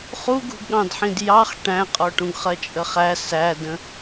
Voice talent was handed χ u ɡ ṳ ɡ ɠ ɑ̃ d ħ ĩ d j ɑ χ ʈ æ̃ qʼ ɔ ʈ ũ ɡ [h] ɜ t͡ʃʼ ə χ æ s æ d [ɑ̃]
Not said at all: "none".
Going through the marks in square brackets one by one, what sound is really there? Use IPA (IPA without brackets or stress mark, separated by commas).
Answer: χ, ə̃